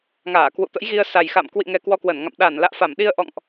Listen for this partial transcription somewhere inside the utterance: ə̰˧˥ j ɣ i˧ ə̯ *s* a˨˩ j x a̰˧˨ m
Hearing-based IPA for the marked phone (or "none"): s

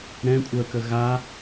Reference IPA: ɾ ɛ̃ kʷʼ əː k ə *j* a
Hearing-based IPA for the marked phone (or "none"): ɣ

